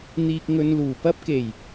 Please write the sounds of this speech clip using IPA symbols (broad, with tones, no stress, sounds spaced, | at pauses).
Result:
n̪ iː˨ k̚ ŋ ɵ˨ n l uː˨˩ p ɐ˥ p̚ k e˨˩ j